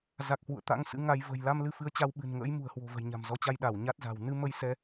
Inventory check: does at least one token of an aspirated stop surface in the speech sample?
no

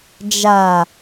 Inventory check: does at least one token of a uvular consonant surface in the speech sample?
no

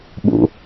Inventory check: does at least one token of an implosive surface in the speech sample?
yes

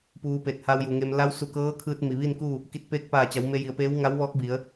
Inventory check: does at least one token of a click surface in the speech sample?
no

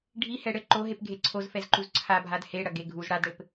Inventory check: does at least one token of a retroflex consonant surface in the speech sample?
yes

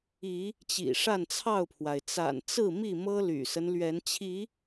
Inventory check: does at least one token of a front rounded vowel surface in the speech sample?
yes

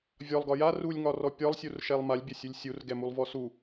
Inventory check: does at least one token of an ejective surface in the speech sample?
no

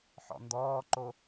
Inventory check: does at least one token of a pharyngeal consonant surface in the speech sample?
yes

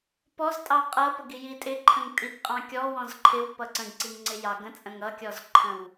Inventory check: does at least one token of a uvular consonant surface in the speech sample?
yes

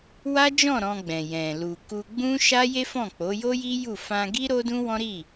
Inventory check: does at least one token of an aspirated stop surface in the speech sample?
no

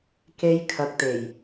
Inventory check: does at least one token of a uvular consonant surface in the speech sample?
no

